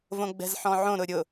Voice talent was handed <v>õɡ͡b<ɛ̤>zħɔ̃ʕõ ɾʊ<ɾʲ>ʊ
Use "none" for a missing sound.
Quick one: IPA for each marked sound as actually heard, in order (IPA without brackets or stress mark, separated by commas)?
v, ɛ̤, ɾʲ